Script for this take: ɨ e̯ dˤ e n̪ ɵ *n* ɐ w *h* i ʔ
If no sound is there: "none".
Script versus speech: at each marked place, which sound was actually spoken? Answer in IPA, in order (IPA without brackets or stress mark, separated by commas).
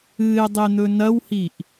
n, h